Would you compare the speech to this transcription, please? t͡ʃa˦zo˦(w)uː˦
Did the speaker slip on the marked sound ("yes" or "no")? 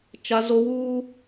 no